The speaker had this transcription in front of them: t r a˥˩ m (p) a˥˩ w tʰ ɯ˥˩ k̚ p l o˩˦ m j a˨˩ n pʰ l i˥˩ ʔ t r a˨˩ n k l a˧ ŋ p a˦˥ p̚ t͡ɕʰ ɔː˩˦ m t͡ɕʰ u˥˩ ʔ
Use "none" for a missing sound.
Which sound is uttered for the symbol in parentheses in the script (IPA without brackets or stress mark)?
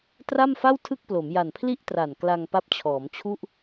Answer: f